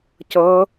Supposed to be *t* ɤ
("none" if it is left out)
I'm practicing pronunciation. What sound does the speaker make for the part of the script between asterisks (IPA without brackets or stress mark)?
c